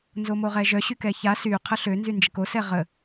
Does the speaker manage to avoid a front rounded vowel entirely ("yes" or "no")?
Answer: no